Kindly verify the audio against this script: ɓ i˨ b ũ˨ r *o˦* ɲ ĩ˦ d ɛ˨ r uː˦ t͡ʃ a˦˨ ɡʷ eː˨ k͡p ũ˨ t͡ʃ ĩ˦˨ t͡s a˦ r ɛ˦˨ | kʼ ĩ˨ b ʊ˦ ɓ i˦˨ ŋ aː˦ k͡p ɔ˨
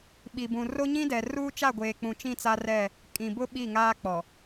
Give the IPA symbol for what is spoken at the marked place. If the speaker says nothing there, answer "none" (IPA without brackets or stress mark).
o˦